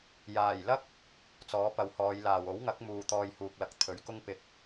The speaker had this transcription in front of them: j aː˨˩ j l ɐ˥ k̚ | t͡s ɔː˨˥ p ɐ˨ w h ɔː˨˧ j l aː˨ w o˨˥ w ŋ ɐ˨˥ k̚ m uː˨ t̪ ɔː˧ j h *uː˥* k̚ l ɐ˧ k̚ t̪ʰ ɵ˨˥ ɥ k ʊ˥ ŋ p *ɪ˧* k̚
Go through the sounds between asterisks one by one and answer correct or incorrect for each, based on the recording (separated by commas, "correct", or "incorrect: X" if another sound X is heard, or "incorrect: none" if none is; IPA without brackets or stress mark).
incorrect: uː˨, correct